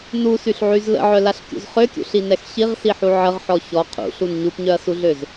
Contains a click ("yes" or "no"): no